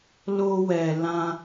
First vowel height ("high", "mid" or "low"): mid